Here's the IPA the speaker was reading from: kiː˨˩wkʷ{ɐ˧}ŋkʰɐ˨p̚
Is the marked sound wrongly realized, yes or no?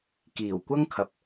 yes